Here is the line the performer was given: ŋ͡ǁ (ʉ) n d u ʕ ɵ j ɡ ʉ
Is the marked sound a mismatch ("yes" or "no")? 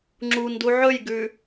yes